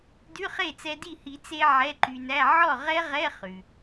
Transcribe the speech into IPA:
dʉ˧˥˧χe˥˩t͡sɛ˧di˥˩ hi˨˩˦t͡se˧ ʕɛ˧˥˧ǃy˧næ˧˥˧ ʕɔ˥˩ʁɛ˦˥ʁɛ˧˥˧ χʉ˩

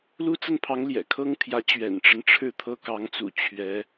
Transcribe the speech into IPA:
lu˥t͡sə˥˩npʰɑ˧˥ŋ ljɛ̰˨˩kʰɤ˥ŋt̪ʰjä˧˥ t͡ɕɥɛ̰˨˩nʈ͡ʂə˦n ʈ͡ʂʰɻ̩˥˩t̪ʰɤ˥kɑ˧˥ŋt͡sṵ˨˩ t͡ɕʰɥɛ˧˥

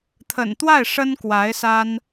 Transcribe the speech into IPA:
t̪ʰə̰˨˩nt̪wa˥˩ɪ̯ ʂə˥nkwa˧˥ɪ̯sa˥n

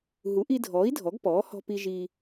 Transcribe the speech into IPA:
ɦu˩˥ʔi˧dʱɔː˩˥i̯ dʱɔ˩˥ɡpɔː˩˥ hɔ̤˧pi˧ ʒi˧

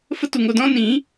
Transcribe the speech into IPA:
fə˦tu˨ŋo˧dɔ̃˦ nĩ˨˦

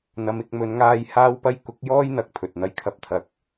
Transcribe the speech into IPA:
n̪ɐ˨˧mɪ˧k̚mɵ˨˧nŋaː˧j haː˥wpɐ˥j kʊ˨˥k̚jɔː˥j n̪ɐ˨k̚ pʰɵ˨t̚n̪ɐ˥j kʰɐ˨p̚t̪ʰɐ˨k̚

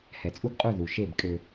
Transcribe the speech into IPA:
hɛ˨t͡sʼu˦ɡqʼu˦˨ ðu˨ ʃe˦˨b kʼø˦

